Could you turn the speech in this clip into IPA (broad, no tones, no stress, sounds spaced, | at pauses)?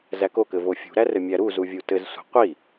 z æ k o k ɘ v o fʲ ṳ ɾ æ r ɘ mʲ æ ɾ u z u vʲ u t ɘ z sʷ i̤ qʷ i